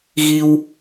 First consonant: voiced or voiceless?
voiced